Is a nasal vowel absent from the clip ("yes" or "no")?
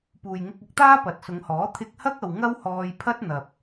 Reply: yes